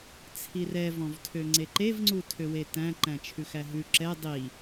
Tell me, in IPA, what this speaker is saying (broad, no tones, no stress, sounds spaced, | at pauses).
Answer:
t͡sʰ i r ɛ v ɔ̃ v tʰ ø ŋ͡ǀ e ǃ e v ŋ͡ǀ u tʰ ø w e t æ̃ ǃ æ̃ t͡ʃʰ ʉ x æ ɦ ʉ ǁ ɛ dˤ i